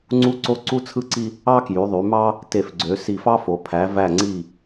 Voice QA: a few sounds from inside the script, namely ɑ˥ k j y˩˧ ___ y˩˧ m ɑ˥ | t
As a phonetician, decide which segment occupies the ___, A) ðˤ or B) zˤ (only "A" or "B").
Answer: A